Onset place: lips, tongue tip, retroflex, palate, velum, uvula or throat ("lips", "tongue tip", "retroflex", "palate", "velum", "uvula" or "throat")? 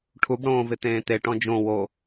retroflex